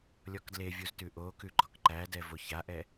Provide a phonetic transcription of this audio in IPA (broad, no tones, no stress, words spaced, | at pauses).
lʲɔkdlevʲuz tʉʔokʉ ɡ͡ǃɔkǃædɛ voçaʔɛ